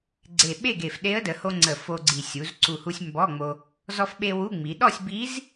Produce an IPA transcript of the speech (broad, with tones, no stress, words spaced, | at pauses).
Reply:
ɡ͡ǀe˨˩ɓe˥˨ɡe˨˩f ɗe˧˥ə̯də˩˧ ho˧ŋ͡ǀə˨˩ fo˧ɡ͡ǀi˨˩ sʲu˩˧z ǀu˨˩hu˧sʲ mbɔ˧˥˧ŋ͡mo˧ | zɔ˧fɓe˧ wu˧˥˧ŋ͡mi˩˧ ɗɔ˥˨sʲ bi˧˥z